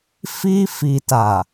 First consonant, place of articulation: labial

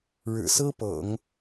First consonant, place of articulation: retroflex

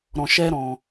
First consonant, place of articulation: alveolar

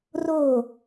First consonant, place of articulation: alveolar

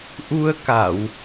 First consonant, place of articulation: glottal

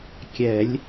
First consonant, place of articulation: velar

